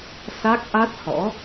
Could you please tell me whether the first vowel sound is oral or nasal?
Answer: oral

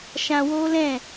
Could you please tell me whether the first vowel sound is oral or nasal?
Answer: nasal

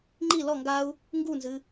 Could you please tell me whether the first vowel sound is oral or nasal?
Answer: oral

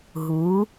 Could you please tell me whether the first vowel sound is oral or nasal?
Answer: oral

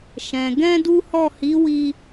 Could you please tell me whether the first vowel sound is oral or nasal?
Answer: nasal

